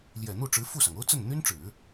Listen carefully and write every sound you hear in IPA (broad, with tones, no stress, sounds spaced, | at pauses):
l j ɛ˨˩ n̪ u˥˩ ʈ͡ʂ ɻ̩˧˥ f u˥˩ s ɑ˩ ŋ o˥ ʊ̯ t͡s ə˥˩ n n̪ y˥ n ʈ͡ʂ ɻ̩˨˩˦